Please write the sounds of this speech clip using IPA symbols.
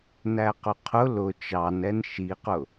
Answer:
næqʊqʰʊ lʊ t͡ʃɑn ɛnʃiqʊ

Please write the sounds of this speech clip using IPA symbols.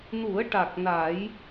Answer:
nu˨˩˦ə̯ʈa˨˩k̚ na˨˩˦j

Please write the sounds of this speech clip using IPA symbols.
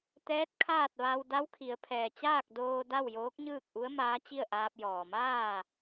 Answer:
t̪ɛː˧˥t̚kʰaː˥˨t̚ ʋa˧w da˧˥wkʰi˩˧ə̯pʰɛː˩t͡ɕaː˥˨k̚ doː˧da˥˨w joː˧˥k̚ɲɯː˥˨k̚ʔu˧˥ə̯ maː˧˥t͡ɕi˥˨ə̯ʔaː˧p̚ jɔː˩maː˥˨

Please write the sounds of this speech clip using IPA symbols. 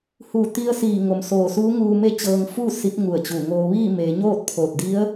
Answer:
hu˧˩ t̪i˧ə̯siː˧˩ŋo˩m soː˧˩suː˧˥ ŋuː˧me˥˨t͡ɕɤː˧ŋ fu˥˨ si˧˥p̚ŋu˧˩ə̯t͡ɕu˧˩ŋoː˧ ʋiː˥˨me˩˧ ɲoː˥˨t̚pʰoː˧˩t̚di˧˥ə̯

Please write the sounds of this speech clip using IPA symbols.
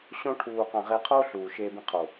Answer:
ɕõ˧ʈʰuː˨qã˨ ʁe˧qʰoː˦ ɬuː˨ʃeː˧bĩ˧qʰo˨

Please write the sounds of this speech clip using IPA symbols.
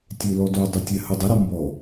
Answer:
tʲelɔdo dˤetʲɛhɯdˤɛ ɾɔmbɔ

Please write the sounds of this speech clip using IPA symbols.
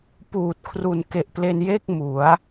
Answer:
puː˨˩t̚kʰru˨˩n ke˨˩ʔple˧nje˥˩k̚ mu˩˦a̯

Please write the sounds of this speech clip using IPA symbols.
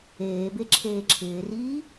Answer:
eːbe ǁʰeːǁʰɪːriː

